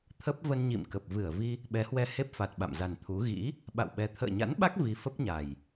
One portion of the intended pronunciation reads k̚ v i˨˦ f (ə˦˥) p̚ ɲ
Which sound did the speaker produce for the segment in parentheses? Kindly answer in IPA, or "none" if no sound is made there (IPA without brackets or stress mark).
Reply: ə˦˥